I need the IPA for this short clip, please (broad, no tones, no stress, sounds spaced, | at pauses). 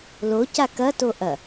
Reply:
l o c a k ɐ t o ʔ ɐ